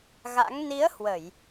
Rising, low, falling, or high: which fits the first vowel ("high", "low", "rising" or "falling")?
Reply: rising